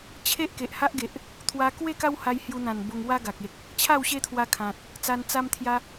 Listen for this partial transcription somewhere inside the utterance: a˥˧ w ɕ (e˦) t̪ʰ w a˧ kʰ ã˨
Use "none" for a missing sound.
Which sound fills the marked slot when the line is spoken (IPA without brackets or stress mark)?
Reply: e˦